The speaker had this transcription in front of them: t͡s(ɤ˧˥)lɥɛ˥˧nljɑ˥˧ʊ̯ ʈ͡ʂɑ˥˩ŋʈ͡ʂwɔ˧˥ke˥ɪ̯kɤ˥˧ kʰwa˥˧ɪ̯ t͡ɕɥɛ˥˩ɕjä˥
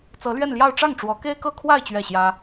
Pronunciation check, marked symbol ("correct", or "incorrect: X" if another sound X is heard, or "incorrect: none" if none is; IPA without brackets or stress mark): correct